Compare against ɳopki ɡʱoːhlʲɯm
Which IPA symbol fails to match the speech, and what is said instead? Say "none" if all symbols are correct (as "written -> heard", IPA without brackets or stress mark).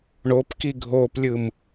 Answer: h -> p